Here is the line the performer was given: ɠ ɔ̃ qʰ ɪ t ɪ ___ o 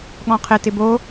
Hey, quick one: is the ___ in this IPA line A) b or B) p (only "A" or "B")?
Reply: A